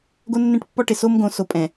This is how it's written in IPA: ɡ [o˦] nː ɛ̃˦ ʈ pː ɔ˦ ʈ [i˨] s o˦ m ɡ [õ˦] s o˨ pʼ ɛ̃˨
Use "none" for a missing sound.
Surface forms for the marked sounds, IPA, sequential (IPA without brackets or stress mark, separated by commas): o˦, ɪ˨, õ˨˦